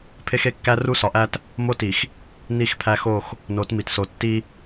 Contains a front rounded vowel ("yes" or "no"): no